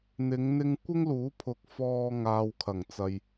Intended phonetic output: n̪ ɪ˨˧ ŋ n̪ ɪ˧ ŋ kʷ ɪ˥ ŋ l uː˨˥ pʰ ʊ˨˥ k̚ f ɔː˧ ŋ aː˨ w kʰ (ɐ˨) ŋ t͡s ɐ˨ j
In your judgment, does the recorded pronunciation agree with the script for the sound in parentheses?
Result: no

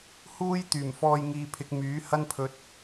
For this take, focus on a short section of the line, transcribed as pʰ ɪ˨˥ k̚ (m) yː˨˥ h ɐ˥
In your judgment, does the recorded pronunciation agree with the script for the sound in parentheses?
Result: yes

